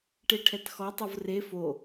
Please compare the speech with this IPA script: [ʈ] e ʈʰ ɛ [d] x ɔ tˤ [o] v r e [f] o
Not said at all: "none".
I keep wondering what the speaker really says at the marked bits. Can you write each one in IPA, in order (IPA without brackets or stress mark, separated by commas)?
ʈ, t, o, f